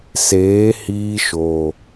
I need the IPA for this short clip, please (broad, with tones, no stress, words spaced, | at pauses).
seː˨˦hiː˧ʃoː˨